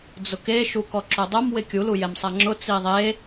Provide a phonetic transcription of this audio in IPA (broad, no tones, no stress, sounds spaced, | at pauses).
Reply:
d͡z ʊ k e ʃ u k ɔ ǁ o dˤ o m w ɪ kʲ u l u j ɛ m sˤ a ŋ͡ǁ ʊ t͡s i ðˤ e